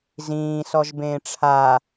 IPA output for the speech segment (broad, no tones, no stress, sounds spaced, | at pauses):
z ĩː s ɔ ʒ b ẽː ʈ͡ʂʰ a